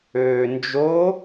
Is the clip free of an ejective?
yes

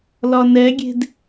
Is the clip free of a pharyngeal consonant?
yes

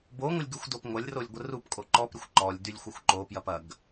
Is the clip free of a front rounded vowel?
no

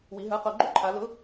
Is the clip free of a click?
no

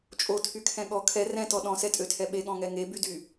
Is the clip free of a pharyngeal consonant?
yes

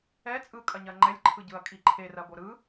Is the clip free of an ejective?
no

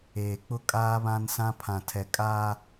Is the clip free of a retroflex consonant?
yes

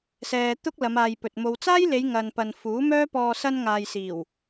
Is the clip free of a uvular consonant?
yes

